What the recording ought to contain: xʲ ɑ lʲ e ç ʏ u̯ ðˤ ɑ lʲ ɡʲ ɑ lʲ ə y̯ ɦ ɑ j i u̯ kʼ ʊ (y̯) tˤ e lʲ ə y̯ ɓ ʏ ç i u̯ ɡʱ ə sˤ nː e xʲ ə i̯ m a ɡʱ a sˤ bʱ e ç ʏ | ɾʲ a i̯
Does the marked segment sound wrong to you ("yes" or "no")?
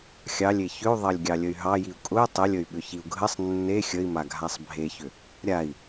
no